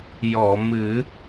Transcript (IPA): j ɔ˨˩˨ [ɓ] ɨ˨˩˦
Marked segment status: incorrect: m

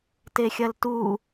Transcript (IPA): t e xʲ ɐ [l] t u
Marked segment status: correct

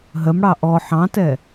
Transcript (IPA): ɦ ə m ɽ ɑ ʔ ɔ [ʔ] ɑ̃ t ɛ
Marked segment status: incorrect: ħ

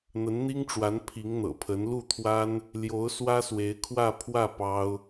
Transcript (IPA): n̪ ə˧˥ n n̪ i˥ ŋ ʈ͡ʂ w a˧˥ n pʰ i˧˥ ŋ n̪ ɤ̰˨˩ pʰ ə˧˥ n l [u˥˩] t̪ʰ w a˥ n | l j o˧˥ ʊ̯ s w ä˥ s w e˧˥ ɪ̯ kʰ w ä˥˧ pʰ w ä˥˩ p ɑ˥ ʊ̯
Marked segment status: correct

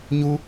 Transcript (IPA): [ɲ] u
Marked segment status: correct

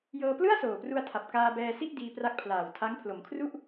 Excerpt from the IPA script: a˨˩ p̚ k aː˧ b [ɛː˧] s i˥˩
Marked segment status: correct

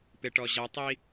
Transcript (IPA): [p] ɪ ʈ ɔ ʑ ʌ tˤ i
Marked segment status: correct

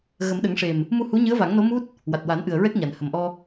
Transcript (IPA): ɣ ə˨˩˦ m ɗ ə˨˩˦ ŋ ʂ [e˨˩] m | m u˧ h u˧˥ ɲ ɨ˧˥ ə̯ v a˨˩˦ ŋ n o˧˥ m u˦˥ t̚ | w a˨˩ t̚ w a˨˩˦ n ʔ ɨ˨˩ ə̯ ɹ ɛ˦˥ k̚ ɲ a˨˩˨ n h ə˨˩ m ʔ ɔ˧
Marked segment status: correct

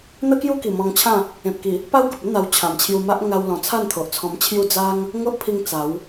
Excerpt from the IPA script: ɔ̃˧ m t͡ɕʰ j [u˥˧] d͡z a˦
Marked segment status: correct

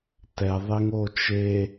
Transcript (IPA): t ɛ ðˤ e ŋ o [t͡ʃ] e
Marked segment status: correct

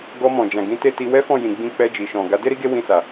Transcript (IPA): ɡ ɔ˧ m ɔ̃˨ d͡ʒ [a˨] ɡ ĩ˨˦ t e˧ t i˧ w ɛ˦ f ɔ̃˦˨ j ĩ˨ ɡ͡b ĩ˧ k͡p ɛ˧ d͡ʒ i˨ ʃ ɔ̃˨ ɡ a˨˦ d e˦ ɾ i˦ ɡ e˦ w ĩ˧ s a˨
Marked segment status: incorrect: ã˨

